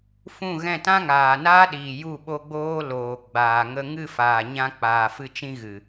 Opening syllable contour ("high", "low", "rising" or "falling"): falling